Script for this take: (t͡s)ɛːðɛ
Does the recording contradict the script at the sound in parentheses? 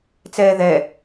no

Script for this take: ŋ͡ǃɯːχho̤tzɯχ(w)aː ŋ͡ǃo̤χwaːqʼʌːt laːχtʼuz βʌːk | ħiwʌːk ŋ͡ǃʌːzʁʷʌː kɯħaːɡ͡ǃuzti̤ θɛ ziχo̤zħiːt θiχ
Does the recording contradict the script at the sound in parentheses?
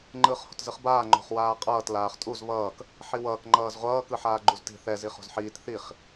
yes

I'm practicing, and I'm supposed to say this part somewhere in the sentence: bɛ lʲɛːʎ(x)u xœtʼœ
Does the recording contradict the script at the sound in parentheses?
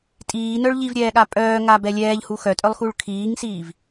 yes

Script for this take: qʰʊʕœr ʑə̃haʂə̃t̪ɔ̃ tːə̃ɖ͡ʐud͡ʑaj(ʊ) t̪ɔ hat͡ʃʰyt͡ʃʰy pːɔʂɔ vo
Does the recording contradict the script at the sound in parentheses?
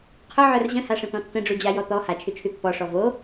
yes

